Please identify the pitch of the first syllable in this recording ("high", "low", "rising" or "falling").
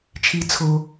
low